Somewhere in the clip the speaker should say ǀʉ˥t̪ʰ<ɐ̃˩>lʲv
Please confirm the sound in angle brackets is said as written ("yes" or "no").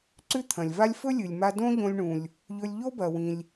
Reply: yes